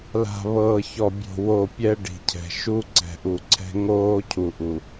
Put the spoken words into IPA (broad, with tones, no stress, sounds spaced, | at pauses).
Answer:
l a̤˨ β ɤː˨ ç ɔ˨ bʲ o̤˨ w o˦˨ pʲ ɛ˦ ɖ i̤˨ cʰ ɛ̤˨ ʃ u˦ ǀ ɛ̤˨ ʔ u˨ ǀʰ ɛ̤˦ ŋ oː˦ cʰ u˨ ʔ u˨